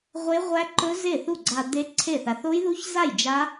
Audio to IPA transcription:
ʁʷ e˦˥ ʁʷ æ˦˥ ǃ ɵ˦˥ z e˥˩ θ u˥˩ ɡ͡ǀ a˧ d̪ e˦˥ ǀʰ e˥˩ θ a˧ θ o˦˥ j ð u˦˥ ç z a˥˩ j d͡ʒ a˦˥

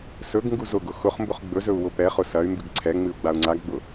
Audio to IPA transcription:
s ɵ ɡ ŋ ɡ u z ʊ ɡ ʊ x ʊ χ m b ʊ χ ɡ͡b ɵ z ɵ u̯ w ʊ p ɛ χ ʊ s ɐ y̯ m b ɨ ɡ ǀʰ ɛ ŋ͡m ɨ u̯ ɡ͡b a u̯ ŋ͡ǀ a ɡ ɡ͡b ʊ

